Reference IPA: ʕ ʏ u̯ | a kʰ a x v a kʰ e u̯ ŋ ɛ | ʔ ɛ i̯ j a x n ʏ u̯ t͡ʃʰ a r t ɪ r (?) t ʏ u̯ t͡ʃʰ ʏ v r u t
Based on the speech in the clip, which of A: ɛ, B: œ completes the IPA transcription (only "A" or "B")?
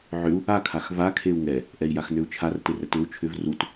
A